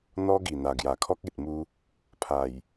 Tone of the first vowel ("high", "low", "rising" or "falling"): high